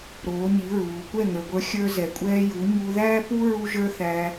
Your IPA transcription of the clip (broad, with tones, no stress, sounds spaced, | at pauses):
ɾ oː˨˦ ɲ i˨˦ ɹ uː˨ kʷ ɛ˦˨ ŋ ə˞˨ ɡʷ ə˞˧ xʲ ə˞˦ z ɛ˨ kʷʼ ɛː˧ j u˨˦ ɲ u˧ ð æː˦ p u˦ ɹ u˦ ʒ ə˞˦ θ æ˧